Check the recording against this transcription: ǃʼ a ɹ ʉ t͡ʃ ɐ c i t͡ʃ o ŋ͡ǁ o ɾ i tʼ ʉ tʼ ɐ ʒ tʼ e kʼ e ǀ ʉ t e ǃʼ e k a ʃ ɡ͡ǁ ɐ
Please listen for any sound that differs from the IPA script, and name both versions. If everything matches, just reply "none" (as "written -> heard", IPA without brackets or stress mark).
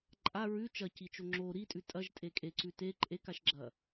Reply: none